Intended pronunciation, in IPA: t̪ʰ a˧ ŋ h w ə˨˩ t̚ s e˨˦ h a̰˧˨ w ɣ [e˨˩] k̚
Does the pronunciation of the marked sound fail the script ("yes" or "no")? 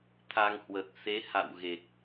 no